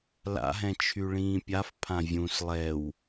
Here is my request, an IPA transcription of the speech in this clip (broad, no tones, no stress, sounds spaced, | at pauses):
l a̰ ɦ ɛ̃ t͡ʃʰ y ɭ ĩː pʲ a f pʰ ã vʲ ũ s lˠ ɛ w